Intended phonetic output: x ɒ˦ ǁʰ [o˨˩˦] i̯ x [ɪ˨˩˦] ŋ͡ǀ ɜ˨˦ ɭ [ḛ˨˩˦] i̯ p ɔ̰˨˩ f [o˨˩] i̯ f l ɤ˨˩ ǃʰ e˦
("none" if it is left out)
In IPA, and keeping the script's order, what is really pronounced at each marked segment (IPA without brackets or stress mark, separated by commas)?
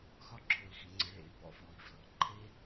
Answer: o˨˩˦, i˨˩˦, ḛ˨˩˦, ɔ˨˩